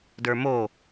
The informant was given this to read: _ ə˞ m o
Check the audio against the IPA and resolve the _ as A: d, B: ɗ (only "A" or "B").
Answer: A